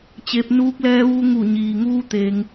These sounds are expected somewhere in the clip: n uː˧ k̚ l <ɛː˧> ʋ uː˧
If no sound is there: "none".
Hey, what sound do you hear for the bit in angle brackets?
ɛː˧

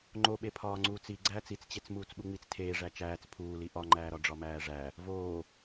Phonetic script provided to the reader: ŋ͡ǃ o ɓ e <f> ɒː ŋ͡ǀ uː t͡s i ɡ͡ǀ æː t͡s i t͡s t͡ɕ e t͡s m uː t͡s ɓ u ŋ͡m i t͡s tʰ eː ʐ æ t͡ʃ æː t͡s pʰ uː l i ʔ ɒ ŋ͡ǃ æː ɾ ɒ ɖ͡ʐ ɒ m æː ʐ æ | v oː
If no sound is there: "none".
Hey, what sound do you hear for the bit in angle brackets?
pʰ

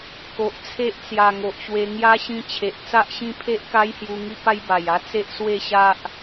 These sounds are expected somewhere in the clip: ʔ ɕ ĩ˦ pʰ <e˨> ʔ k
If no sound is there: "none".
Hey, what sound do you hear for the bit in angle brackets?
e˦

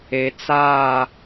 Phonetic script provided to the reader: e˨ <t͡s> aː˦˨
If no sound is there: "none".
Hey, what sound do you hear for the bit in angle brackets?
t͡s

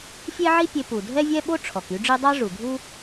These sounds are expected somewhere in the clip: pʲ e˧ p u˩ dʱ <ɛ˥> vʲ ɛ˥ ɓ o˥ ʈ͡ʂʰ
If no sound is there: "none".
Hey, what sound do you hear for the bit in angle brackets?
ɛ˥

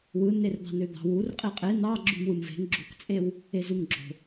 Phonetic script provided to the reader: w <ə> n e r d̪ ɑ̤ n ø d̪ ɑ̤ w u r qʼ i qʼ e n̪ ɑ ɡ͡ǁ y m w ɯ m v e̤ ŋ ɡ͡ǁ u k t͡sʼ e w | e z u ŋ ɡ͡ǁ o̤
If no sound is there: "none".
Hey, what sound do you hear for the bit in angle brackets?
ɯ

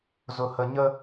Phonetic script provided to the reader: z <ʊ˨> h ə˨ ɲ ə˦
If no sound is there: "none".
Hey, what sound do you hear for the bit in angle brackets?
ʊ˨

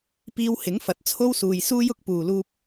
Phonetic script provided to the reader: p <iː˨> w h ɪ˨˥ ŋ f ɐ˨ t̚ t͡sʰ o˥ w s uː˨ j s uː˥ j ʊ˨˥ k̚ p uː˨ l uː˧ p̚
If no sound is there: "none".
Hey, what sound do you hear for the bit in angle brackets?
iː˧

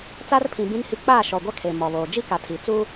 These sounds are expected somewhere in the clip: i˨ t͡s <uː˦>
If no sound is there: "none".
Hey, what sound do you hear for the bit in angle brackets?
uː˦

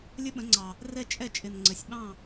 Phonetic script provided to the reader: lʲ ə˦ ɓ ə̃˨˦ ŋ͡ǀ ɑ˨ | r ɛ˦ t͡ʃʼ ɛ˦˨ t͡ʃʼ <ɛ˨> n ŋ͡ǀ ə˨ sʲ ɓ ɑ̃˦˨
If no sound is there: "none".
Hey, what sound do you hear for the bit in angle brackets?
ɪ˨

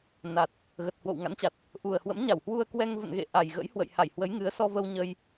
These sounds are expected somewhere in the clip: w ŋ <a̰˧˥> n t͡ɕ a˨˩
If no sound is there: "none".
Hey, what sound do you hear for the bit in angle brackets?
a̰˧˥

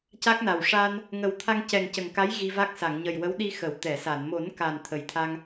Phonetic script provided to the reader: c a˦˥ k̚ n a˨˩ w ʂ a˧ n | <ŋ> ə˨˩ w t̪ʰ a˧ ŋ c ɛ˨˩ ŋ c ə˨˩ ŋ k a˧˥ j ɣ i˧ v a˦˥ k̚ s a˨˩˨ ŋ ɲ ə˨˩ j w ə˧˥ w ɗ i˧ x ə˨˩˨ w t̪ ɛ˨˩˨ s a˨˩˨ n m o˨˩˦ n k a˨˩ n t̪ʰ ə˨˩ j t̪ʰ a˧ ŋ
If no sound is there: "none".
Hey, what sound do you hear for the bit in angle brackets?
ŋ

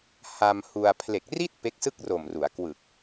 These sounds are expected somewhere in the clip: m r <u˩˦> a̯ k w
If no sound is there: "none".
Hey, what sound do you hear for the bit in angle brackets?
u˩˦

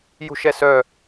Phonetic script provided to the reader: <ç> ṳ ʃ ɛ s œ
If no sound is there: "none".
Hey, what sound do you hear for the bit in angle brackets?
j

